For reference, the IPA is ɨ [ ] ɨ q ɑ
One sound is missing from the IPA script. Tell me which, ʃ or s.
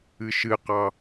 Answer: ʃ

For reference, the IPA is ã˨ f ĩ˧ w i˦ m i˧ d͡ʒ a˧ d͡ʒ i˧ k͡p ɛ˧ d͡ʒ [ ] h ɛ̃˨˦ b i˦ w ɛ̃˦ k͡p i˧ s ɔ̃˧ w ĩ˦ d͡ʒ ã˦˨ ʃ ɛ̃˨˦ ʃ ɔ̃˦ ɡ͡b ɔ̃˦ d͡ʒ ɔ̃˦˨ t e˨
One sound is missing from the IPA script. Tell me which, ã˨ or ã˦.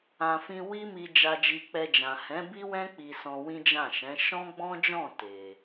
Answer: ã˨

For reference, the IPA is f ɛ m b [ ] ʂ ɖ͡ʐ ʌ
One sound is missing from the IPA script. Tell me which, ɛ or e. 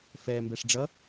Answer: ɛ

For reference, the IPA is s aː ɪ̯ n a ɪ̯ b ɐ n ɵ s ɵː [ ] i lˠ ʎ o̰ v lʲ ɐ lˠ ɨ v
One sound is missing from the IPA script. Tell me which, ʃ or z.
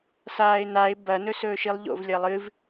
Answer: ʃ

